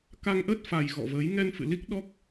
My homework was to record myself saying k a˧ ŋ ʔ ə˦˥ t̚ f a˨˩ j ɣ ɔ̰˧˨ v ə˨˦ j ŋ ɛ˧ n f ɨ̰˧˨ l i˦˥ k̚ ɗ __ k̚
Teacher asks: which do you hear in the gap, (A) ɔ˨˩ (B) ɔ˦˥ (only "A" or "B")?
B